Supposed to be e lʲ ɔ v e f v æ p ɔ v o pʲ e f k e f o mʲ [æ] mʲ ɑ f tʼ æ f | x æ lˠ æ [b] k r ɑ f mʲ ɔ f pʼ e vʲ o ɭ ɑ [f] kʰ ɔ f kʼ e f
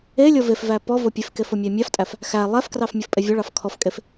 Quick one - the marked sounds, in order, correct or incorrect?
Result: correct, incorrect: f, correct

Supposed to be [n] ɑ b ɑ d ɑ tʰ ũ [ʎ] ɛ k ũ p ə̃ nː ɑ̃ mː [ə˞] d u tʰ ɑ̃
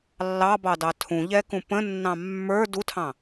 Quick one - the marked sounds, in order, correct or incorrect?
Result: incorrect: lː, correct, correct

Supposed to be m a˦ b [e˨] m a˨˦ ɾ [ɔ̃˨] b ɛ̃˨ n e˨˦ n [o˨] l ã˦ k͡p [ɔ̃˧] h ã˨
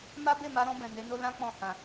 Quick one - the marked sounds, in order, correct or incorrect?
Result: incorrect: e˦˨, incorrect: ɔ̃˧, incorrect: o˦, correct

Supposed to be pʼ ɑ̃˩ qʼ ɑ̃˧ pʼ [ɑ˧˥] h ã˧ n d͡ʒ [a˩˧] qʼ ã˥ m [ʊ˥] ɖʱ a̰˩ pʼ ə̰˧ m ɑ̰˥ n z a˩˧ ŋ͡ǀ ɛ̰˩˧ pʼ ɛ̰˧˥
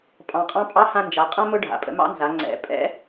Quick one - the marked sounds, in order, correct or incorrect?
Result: correct, correct, correct

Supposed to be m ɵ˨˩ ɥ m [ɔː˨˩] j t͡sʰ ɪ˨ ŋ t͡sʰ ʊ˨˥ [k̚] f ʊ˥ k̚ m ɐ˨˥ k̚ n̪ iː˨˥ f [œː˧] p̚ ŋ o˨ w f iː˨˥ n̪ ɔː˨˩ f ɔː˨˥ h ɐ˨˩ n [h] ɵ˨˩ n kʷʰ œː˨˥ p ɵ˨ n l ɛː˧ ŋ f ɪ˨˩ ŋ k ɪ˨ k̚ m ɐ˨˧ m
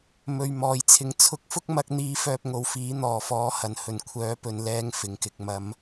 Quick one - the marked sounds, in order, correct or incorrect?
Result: correct, correct, correct, correct

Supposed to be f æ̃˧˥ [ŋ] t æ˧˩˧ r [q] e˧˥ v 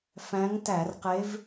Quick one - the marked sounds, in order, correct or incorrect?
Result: correct, correct

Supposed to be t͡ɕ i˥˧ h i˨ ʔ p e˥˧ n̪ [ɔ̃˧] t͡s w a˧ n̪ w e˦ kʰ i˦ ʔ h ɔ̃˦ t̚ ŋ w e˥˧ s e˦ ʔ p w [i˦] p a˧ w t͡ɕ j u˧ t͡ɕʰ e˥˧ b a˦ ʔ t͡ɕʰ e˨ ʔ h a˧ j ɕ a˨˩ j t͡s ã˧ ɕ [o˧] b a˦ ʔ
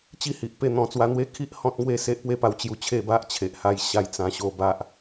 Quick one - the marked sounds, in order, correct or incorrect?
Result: incorrect: ɔ̃˨˩, incorrect: e˦, correct

